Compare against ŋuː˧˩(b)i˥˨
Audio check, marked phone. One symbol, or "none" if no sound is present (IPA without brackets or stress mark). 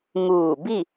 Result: b